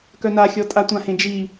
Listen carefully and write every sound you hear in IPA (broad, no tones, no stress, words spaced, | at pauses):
kœnaxʲɔtʼa tʷãhẽd͡ʒi